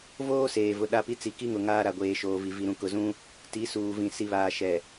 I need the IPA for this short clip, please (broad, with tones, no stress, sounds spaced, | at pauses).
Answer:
v oː˦ s eː˨ v ʊ˨ ɗ a˦ p i˦ t͡s i˨ k i˦ ŋ ʊ˨ ŋ aː˦ ɾ a˨ ɡʷ eː˨ ʃ oː˨ v i˨ v i˨ ɾ ũ˨ k ʊ˨ z ũ˦ | t i˨˦ s uː˨ v ĩ˨ s i˨ β aː˨ ʃ ɛ˨